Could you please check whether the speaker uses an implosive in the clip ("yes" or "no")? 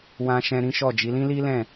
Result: no